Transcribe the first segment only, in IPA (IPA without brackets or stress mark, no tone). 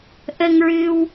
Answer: ʔ